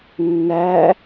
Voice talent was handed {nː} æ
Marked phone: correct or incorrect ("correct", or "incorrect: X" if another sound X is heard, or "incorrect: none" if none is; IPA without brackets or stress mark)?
correct